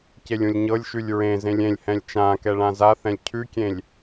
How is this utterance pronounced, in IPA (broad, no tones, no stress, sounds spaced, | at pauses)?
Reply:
c e lʲ ũ lʲ ɲ ɤ lʲ ʃ ʉ lʲ ɹ ẽ z ẽ lʲ ẽ lʲ h ɛ̃ lʲ t͡ʃ ã k ɛ ɭ ã z a θ ɛ̃ lʲ cʰ ʉ kʲ ẽ lʲ